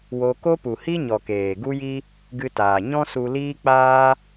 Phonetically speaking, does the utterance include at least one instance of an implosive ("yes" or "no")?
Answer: no